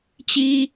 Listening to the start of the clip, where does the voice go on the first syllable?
high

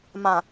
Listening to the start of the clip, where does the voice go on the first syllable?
low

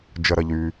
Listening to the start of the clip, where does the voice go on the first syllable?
low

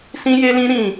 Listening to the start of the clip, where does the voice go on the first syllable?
high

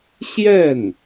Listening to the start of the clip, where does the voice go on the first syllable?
falling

